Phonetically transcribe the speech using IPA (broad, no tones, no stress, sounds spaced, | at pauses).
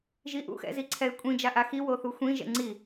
ʒ i ʔ ṵ x ɛ̰ z i ǀʰ ɛ ɪ̯ kʷʼ ĩ d͡ʒ a ʔ a x i w o θ u xʷ ĩ ʒ ɛ̰ ŋ͡ǀ i